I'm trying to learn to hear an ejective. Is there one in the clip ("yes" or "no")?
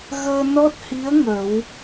no